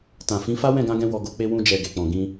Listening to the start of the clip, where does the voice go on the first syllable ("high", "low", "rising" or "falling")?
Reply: low